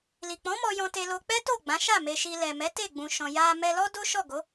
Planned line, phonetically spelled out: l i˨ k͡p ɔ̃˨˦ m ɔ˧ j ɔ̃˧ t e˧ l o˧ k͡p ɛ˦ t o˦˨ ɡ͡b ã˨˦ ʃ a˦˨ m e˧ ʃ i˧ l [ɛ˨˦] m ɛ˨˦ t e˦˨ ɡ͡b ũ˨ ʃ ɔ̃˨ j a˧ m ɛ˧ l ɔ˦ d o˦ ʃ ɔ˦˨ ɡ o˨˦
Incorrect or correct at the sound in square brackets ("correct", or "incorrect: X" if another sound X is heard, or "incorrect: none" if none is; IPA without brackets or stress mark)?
incorrect: ɛ˨